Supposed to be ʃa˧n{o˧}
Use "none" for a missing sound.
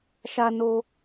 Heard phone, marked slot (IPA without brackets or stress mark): o˧